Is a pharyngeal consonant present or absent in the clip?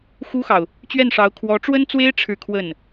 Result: absent